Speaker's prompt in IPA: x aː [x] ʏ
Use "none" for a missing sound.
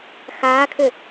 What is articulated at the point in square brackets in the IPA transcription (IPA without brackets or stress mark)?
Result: kʰ